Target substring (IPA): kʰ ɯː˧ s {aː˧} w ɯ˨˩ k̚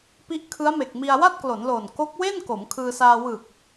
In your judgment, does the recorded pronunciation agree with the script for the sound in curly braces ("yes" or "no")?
yes